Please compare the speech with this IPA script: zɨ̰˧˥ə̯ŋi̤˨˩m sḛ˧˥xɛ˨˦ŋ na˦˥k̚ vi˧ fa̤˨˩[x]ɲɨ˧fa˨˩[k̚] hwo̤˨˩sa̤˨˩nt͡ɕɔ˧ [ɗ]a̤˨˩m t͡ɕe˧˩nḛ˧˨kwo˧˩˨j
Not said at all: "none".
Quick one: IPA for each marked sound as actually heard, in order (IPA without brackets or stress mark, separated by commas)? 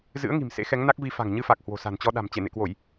ŋ, k̚, ɗ